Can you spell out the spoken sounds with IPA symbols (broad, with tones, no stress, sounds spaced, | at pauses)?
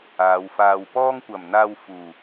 aː˨˧ w f aː˧ w p ɔː˥ ŋ kʷ ɐ˨˩ m n̪ aː˧ w f uː˨˩